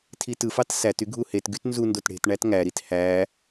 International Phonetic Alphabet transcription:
tʰ i t ɯ f ɑ t s æ t y ɡʱ u h e t ɡ y t n z u n d o t ɽ e̤ t ɳ æ t ŋ æ ɾ i t h æ

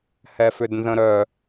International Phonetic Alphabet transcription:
h ɛ f ʏ d n z ə̃ ɾ œ

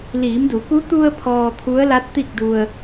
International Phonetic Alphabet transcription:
l iː˩˧ m d u˩˧ k u˧˥ t̪ u˧ ə̯ pʰ ɔː˧ t̪ʰ u˧˥ ə̯ l a˧˥ t̚ t̪ i˥˨ k̚ d u˧ ə̯

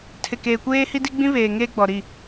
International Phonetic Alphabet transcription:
tʰ ɪ˨ k eː˨ kʷ eː˦ h i˦ d i˦ ɡ͡b ĩ˦ β eː˨ ŋ eː˦ ɡ͡b ɔ˨ ɾ i˦˨

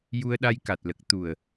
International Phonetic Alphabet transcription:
j u˧ ə̯ ɗ a˧ j k a˨˩ t̚ l ə˨˩ k̚ t̪ u˨˩ ə̯

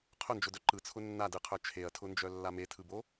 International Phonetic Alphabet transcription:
qʰ ʊ n d͡ʒ ʊ d œ ǃ ɯ t͡sʰ ʊ nː a d ɯ qʰ œ t͡ʃʰ e ɐ̯ tʰ ʊ n d͡ʒ œ lː a m e tʰ ɯ b o

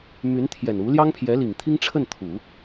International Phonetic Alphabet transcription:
m y˧˥ n t̪ʰ j ɛ˨˩ n u˧˥ l j ɑ˥ ŋ pʰ j ɛ˧˥ l i˨˩ ŋ t̪ʰ i˥ ŋ ʈ͡ʂʰ ə˥˩ n t̪ʰ u˨˩˦

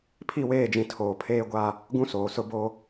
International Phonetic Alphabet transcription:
pʰ i˦˨ w eː˦˨ d͡ʒ ĩ˨ tʰ oː˨ pʰ eː˦ ɡʷ a˦ | ɡ ũ˦ s oː˨ s ʊ˦ b o˦

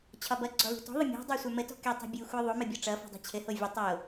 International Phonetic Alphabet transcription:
t͡ɕʰ ɒ b ʌ ɡ͡ǀ ɔ l ṳ t ɔ̤ ðˤ ə mʲ ɔ̤ dˤ ə˞ sʷ ə˞ m ə t ɔ̤ k ɛ tˤ ṳ bʲ u xʷ ə˞ ðˤ o m ɘ bʲ ɔ ʈ͡ʂ ʌ f o̤ dˤ ɛ̤ t͡ɕʰ ɘ h o vʲ ə tˤ o

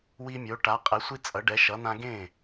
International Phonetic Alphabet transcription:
w i˦ mʲ o˨˥ ʈ a˨˥ qʼ ɛ˨˥ sʷ i˦ t͡sʼ ʌ˨˥ ɖ ɛ˨˥ ʃ ʌ˨˥ n̪ ã˦ ɡ ẽ˥˩

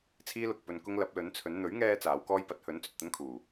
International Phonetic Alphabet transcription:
t͡sʰ iː˥ l ʊ˨ k̚ p ɵ˧ n k ʊ˥ ŋ l ɐ˨˥ p̚ l ɵ˨˥ n t͡sʰ ɵ˨˥ n n̪ ɵ˨˥ ɥ ŋ ɛː˧ t͡s aː˨˥ w k ɔː˥ j p ɐ˨˥ t̚ h ɵ˨˥ n t͡s ɵ˨ t̚ t̪ ɐ˥ n kʰ uː˨˩

